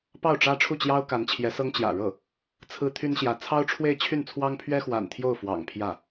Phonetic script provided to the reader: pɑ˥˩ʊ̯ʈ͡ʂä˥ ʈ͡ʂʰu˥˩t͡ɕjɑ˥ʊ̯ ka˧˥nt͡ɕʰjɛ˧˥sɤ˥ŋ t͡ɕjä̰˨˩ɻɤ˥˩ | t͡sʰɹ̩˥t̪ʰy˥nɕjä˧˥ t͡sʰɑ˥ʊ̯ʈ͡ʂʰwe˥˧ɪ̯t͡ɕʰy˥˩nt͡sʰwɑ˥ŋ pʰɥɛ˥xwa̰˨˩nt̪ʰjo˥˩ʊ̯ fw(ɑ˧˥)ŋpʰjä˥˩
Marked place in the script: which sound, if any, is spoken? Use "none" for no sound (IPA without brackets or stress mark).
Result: ɑ̰˨˩